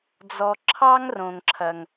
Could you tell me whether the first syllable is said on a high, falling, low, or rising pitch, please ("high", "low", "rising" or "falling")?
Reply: low